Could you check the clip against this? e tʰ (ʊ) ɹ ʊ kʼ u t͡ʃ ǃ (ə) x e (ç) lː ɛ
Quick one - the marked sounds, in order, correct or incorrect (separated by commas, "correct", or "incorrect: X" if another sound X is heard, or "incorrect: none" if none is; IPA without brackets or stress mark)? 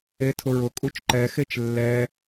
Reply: correct, incorrect: ɛ, incorrect: t͡ʃ